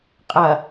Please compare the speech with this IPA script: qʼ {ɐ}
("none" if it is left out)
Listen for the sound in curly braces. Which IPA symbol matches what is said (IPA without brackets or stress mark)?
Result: ɐ